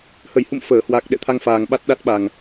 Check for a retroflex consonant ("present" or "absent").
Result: absent